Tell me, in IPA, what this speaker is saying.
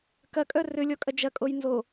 k ɐ kʼ œ r ʏ lʲ ɔ kʼ ɐ d͡ʒ ɐ kʼ o j n z o

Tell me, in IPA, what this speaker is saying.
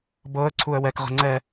b ɤ ə̯ ǀʰ u ə̯ w ɛ k ʁ ə̤ ŋ͡ǀ ɛ

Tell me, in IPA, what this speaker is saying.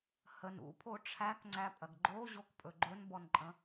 h ə n ṵ pʰ o ʈ͡ʂʰ æ k ŋ͡ǀ æ pʼ ɐ ɡ ɡ͡ǃ o ʑ o k pʼ ɵ ɡ͡ǃ ɵ n b ɔ n ǃʼ ə̃

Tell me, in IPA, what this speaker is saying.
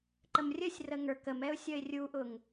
ǃ ə m rʲ ə sʲ r ə ŋ ə˞ k ə m ɛ ʊ̯ sʲ ʌ ɪ̯ rʲ u ʔ ʊ ŋ

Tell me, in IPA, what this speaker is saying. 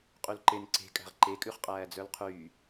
qʼ y l ǃ e n ǀ e̤ kʼ æ̤ ʁ ǃ e kʼ ʉ χ qʼ æː d͡z œ l qʰ yː

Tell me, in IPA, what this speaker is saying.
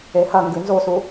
e h ɐ ŋ ɡ ʉ n z o s u

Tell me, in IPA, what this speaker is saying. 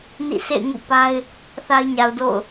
n ḭ˦˨ s ḛ˦˨ ɪ̯ ŋ ṵ˦˨ p a˦ ɪ̯ | θ a˦ ɪ̯ ɲ a˨ ʊ̯ d o̰˦˨ ʊ̯

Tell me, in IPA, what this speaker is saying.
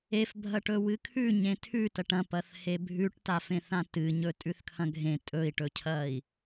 e f bʱ ɐ ʈ ɵ w ɨ kʰ ʉ ɲ ẽ tʰ ʉ t ɐ ʈ ɐ̃ p ɐ θ h e bʱ ʉ ʈ t a f ẽ θ ã t ɨ ɲ ɵ tʼ ʉ θ kʰ ɐ̃ ɡʱ ẽ tʼ ɵ i̯ ʈ ɵ cʰ ɐ i̯

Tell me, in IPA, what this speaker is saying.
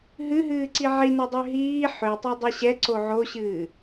ɦ ɨ ɦ ɨː ǀ i ʕ i n ɤ dˤ ø ɦ iː ħ ø tˤ ɛ dˤ ɨ ɕ ɛ ǀ o ʕ o ɕ ɨː

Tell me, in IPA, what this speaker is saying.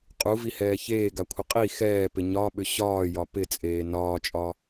qʼ u v i h ɛː ç eː ɡ a kʷʰ ɪ qʼ i x ɛː p ɪ ɲ ɒ ɓ ʏ ɕ ɒː j ɒ p ɪ t͡sʼ eː n ɒː t͡ʃʼ ɒ

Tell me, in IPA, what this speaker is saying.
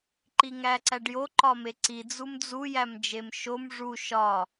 ǃ i ŋ æ ǀ æ ɖ j o ǃ ɒ m e ǀ i d͡z u m d͡z u j æ m d͡ʒ e m ʃ o m ʐ u ʃ ɒ

